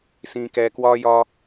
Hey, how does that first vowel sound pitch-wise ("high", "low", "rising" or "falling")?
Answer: high